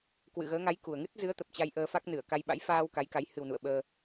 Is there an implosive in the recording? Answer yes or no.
yes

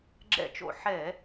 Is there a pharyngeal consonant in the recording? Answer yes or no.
yes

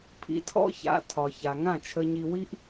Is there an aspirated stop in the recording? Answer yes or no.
yes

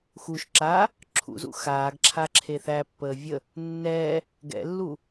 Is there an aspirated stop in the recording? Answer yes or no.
yes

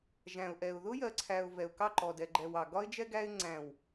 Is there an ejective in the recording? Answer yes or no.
no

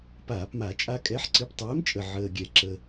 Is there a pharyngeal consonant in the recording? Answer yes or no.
yes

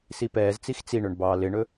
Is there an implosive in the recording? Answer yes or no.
no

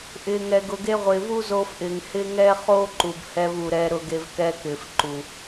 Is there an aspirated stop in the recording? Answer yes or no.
no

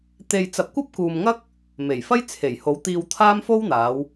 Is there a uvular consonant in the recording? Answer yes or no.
no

